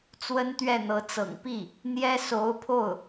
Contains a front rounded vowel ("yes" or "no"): no